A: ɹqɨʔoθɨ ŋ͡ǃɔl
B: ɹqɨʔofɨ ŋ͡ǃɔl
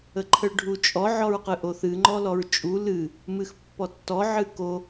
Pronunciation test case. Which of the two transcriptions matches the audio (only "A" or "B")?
A